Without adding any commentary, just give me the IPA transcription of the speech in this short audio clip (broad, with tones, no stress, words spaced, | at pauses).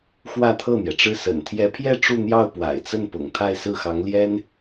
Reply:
xwä˥˧t̪ʰɤ˥˩n̪jɛ˩ʈ͡ʂɻ̩˥˩ sə̰˨˩nt̪ʰjɛ˧˥pʰjɛ˥˧ ʈ͡ʂu˥˧n̪jɑ˥˩ʊ̯ pwa̰˨˩ɪ̯t͡sə˥˩npʊ̰˨˩ŋ t̪ʰa˥˧ɪ̯sɹ̩˥˩xɑ˧˥ŋ ljɛ˥n